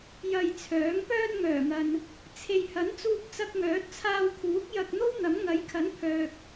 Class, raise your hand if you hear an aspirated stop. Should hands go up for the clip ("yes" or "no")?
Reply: yes